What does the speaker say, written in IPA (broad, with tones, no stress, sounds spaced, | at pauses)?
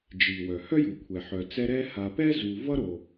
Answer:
d͡ʒ i˩ w œ˩ h œ˥ j u˩ kʷʰ ɛ˩ ħ œ˩ t͡s ɛ˦ ɾ ɛ˥ h a˨ p ɛ˥ z u˨ v ʌ˥ ɾ o˩